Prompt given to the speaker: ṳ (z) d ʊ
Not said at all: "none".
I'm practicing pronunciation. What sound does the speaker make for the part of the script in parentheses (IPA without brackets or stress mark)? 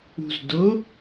z